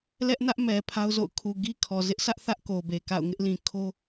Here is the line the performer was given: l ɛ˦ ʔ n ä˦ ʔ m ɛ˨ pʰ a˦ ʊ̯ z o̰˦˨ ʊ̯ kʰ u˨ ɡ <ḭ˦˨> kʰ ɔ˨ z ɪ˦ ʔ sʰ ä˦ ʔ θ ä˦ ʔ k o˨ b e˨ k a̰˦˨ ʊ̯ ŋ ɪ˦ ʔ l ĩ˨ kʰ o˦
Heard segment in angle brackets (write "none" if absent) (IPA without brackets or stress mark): i˦